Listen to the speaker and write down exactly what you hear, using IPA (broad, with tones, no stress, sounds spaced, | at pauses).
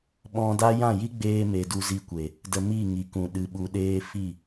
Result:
ɓ ɔ̃˧ d a˦ j ã˦˨ j i˦ ɡ͡b eː˧ m e˨ d u˧ z i˧ kʷ e˨ | d ə˧ m i˦˨ ŋ i˨ k ũ˨ ɗ ɨ˨ ɓ u˨ ɗ eː˧ f i˦˨